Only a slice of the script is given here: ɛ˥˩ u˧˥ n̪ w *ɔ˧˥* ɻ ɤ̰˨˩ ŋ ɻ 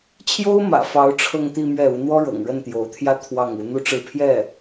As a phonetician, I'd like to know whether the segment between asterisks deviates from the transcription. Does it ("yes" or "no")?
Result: yes